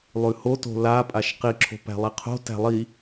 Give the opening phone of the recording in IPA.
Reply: lˠ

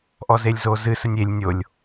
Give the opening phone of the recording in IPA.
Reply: ʔ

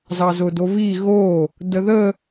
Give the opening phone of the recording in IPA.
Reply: z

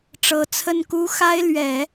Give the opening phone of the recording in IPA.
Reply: ʈ͡ʂ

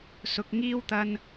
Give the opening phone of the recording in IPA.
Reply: s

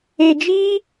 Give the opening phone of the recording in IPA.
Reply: e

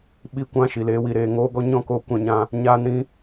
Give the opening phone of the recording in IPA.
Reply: ɓ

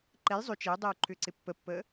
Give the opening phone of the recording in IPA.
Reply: ǃ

